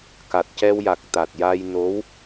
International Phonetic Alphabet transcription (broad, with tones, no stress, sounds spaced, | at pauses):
k a˨˩ t̚ c ɛ˧ w j a˨˩ k̚ t̪ a˨˩ t̚ j a˧ j n o˧˥ w